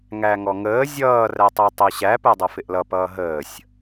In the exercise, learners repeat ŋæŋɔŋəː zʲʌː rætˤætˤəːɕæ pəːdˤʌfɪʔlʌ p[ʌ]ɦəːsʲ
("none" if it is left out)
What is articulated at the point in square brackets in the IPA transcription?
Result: ʌː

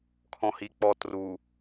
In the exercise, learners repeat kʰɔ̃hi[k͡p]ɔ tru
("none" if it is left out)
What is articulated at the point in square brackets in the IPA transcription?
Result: k͡p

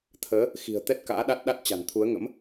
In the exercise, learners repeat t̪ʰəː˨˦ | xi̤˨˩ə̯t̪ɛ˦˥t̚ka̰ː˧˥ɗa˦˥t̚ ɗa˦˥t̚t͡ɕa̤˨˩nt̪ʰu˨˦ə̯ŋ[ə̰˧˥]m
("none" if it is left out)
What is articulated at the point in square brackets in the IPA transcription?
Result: ə̰˧˥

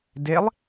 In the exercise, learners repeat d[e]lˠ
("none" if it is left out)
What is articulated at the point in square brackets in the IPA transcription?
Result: e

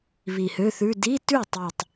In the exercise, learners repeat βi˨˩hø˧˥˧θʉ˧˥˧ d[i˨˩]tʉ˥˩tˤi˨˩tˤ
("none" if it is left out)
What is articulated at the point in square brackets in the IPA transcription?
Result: i˧˥˧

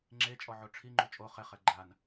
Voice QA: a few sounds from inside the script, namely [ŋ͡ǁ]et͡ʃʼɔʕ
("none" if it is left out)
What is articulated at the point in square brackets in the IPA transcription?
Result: ŋ͡ǁ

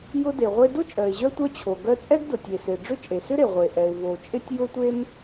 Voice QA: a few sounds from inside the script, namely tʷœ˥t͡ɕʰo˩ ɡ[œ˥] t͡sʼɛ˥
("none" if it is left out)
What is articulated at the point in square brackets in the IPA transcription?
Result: œ˥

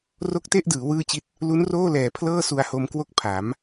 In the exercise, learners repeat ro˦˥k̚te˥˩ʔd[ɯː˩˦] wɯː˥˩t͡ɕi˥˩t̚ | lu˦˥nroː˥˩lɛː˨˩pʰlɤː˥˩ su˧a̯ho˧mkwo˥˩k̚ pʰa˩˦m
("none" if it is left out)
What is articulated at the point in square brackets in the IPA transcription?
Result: ɯː˩˦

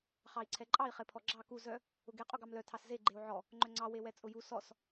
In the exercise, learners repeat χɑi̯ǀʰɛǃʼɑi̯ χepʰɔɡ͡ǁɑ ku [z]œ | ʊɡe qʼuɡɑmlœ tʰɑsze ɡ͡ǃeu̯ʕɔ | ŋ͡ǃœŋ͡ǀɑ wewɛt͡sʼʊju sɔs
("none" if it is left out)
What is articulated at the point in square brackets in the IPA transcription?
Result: z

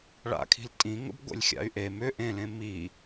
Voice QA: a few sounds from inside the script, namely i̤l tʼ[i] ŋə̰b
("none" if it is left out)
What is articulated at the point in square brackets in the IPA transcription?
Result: ĩ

